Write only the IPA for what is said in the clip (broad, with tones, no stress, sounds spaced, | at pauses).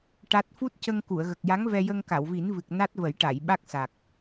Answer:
ʈ a˦˥ t̚ f u˦˥ t̚ c ə˧ ŋ k u˨˩˨ ə̯ ɣ ə˨˩ k̚ j a˧˥ ŋ v ɛ˧ j ə˧ ŋ k a˨˩˨ w v i˨˩˦ n v ɨ˨˩ k̚ n a˦˥ t̚ v ə˨˩˦ j ʈ a˨˩˨ j ɓ a˦˥ k̚ s a˨˩ k̚